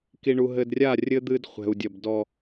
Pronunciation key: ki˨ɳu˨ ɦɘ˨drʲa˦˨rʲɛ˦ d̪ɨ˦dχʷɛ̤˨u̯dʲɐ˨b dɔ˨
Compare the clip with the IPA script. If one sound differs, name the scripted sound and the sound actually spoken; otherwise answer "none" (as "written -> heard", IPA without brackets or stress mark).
ɛ˦ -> ɘ˦